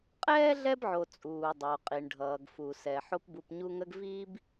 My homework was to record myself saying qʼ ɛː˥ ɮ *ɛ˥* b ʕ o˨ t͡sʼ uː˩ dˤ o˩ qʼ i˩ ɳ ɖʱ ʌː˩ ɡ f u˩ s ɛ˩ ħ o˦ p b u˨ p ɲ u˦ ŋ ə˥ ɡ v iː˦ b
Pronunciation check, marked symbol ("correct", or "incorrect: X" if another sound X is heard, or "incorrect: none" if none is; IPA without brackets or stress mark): correct